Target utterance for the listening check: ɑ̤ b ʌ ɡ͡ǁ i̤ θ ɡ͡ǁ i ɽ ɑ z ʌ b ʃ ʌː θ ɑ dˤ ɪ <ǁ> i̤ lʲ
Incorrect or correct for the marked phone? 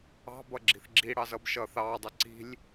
incorrect: ǀ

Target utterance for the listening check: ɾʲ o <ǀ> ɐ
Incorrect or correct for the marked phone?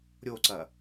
correct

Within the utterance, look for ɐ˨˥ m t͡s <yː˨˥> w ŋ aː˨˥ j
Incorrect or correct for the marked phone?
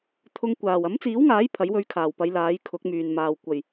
incorrect: iː˨˥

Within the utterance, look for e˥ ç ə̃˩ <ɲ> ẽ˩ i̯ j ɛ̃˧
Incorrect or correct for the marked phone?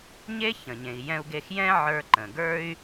correct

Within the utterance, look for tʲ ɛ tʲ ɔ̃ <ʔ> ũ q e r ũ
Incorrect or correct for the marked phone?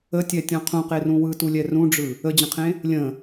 incorrect: qʰ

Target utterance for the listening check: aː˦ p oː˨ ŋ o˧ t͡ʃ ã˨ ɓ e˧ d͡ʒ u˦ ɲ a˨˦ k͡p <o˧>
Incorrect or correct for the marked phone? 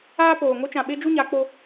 correct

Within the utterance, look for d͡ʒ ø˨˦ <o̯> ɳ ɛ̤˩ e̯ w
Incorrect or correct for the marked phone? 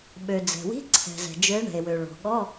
incorrect: e̯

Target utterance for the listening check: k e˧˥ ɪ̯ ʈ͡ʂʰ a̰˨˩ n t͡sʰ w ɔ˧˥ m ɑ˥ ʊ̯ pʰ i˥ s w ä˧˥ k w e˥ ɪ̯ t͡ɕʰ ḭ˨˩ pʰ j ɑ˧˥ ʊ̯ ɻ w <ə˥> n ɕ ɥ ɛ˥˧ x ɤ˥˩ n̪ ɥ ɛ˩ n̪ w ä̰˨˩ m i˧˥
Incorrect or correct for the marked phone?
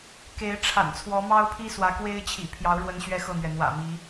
correct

